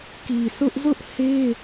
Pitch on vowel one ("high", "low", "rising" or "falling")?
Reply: low